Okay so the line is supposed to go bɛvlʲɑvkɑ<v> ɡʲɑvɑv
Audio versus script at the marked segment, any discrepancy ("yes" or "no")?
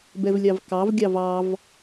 no